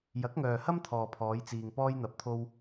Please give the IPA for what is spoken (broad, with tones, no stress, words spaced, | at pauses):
jɐ˨˥k̚ŋœː˨ hɐ˥m t̪ʰɔː˨pʰɔː˨˧jt͡siː˨ŋ pɔː˧jn̪ɐ˨p̚t̪ʰo˧w